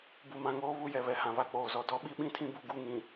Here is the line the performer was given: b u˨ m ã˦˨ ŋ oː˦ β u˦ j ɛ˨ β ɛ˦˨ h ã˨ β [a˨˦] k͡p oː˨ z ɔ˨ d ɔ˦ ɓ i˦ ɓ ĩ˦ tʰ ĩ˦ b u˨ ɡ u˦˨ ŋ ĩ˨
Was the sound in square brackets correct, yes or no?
no